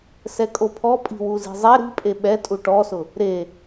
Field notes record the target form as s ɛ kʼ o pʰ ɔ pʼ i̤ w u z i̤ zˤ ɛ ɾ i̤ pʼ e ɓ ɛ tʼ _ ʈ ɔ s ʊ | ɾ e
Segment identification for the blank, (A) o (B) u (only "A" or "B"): B